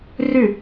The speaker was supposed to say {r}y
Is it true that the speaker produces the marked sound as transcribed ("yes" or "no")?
yes